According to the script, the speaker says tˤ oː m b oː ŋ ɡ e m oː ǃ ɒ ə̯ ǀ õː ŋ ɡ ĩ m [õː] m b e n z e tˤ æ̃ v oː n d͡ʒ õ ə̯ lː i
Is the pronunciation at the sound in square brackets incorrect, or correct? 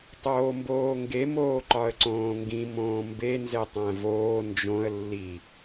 correct